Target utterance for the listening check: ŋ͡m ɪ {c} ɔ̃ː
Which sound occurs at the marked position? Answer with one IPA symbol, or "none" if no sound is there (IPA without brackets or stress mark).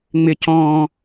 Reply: c